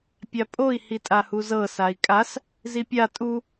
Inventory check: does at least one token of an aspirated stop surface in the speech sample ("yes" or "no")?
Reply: no